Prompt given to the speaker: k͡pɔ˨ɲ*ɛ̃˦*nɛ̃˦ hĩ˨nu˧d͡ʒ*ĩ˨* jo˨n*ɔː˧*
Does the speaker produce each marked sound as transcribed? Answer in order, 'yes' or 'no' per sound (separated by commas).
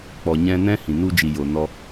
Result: no, no, no